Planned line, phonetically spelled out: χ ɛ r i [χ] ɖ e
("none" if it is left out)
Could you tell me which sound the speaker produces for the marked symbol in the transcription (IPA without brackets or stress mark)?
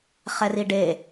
none